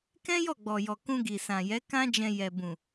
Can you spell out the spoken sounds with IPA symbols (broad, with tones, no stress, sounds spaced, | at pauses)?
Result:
k ɛ̃˦ j ɔ˦˨ ɡ͡b ɔ˨ j ɔ˨ k ũ˧ ɡ i˨ s ã˨ j ɛ˨˦ k ã˦ d͡ʒ ɛ̃˧ j ɛ˨ b ũ˨